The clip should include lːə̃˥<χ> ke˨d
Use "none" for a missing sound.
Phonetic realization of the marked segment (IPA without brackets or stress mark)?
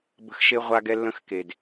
x